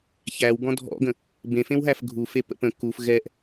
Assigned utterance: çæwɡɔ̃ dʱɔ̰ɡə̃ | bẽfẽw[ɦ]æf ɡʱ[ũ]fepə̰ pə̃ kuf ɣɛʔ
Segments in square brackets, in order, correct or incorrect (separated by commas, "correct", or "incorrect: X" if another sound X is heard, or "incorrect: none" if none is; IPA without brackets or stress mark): correct, incorrect: u